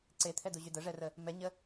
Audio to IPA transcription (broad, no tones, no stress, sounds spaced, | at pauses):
ǀ e t̪ʰ ɛ d u ʑ y d ə ʐ ɛ r ə | m ɛ ɲ ə